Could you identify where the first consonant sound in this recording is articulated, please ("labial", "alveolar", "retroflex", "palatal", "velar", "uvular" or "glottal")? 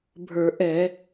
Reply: labial